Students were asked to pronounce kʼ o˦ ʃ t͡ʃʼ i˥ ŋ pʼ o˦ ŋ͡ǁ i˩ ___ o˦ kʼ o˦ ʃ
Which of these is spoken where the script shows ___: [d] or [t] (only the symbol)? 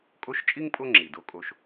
d